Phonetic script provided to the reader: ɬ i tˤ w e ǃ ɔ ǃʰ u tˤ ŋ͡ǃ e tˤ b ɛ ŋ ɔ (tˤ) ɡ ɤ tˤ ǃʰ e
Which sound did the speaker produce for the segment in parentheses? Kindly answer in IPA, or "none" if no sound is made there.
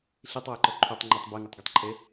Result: tˤ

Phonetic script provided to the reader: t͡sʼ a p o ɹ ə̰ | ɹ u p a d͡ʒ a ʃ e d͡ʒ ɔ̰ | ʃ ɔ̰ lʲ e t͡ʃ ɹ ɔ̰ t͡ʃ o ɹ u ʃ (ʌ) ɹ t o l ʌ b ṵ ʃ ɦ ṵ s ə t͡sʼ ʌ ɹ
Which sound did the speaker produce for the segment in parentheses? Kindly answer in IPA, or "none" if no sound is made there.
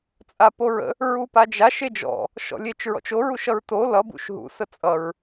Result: ʌ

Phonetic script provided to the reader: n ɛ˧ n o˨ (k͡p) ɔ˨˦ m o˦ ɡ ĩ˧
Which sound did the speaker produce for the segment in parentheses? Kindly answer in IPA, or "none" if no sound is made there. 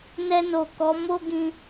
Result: k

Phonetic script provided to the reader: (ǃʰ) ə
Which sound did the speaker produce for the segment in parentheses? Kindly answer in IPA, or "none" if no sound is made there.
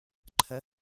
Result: ǃʰ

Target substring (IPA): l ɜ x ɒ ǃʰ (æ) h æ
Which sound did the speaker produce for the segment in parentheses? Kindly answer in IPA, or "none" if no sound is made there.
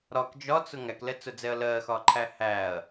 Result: æ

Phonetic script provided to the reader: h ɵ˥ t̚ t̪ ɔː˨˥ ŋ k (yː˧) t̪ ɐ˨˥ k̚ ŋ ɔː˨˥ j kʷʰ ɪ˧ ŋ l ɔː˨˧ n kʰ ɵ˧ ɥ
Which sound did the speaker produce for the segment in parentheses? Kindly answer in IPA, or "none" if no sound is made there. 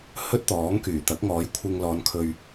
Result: yː˨˩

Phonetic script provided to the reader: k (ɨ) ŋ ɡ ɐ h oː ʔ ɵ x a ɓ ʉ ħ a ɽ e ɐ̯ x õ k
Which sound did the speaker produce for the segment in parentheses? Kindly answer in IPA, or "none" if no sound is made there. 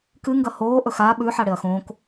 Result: ɨ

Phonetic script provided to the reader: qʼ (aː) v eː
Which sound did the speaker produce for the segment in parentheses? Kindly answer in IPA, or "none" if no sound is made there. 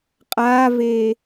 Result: aː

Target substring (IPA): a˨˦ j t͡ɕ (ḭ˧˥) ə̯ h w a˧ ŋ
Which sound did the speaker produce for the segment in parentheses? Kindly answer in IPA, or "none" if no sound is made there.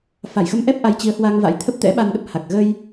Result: i˨˦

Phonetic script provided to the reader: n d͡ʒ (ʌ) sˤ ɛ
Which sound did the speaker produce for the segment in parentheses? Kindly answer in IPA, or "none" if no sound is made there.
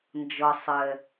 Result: ʌ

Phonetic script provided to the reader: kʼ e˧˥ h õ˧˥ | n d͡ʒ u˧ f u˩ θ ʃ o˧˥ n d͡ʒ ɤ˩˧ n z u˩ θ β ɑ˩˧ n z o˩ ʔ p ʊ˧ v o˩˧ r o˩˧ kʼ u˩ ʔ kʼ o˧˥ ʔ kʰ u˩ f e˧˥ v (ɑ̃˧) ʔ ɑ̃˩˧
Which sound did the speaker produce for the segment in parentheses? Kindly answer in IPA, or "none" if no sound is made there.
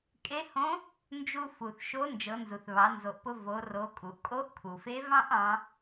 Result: ɑ̃˥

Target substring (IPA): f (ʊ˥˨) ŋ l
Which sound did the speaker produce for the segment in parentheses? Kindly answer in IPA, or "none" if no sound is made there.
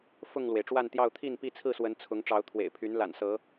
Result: ʊ˥˨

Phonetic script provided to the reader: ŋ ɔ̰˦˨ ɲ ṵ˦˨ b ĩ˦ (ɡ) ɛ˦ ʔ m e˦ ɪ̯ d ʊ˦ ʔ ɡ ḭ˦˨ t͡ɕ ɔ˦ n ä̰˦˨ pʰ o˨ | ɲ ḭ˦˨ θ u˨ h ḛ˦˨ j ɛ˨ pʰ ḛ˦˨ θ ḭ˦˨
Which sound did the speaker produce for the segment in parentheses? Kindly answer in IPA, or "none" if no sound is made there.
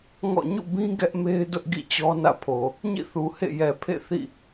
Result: ɡ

